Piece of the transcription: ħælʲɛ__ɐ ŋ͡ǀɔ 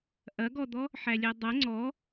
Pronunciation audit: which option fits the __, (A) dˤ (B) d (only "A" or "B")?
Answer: A